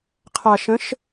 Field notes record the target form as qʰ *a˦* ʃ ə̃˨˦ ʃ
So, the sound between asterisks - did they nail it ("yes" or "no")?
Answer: no